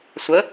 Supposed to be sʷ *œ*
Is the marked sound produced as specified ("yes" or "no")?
no